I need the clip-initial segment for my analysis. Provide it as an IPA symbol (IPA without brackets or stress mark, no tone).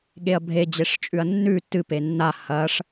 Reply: ɠ